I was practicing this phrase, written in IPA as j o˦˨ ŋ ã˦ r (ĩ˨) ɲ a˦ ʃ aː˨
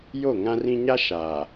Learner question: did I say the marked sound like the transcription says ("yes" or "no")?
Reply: no